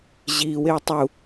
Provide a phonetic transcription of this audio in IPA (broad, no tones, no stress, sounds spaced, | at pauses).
ʑ iː w e w tˤ u